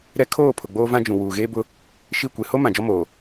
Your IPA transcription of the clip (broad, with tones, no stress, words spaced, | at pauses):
ɾɛ˦ kʰoː˦˨ pʰʊ˨ɡ͡boː˦vã˦d͡ʒũ˨ wuː˨ɣeː˦bʊ˦ | ʃi˦˨kʷe˨ ho˦ mã˨d͡ʒɔ˦moː˨